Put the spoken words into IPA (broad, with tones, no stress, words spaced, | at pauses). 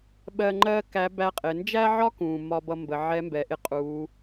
ɓɜ˧ ŋ͡ǃɜ˥kæ˧˥ bæ˧˥qʼɪ˩˧ nd͡ʒæ˥ʕɒ˥kũ˩ mɒ˧bʌ˧ mbə˩˧ʕɛ˧˥mbɛ˩˧ʔɪ˧ qʼu˩˧